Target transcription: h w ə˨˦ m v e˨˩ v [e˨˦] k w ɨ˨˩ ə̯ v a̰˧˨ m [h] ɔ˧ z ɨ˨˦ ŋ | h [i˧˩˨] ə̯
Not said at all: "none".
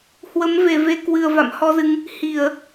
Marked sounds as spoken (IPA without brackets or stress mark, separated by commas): e˨˦, h, i˧˩˨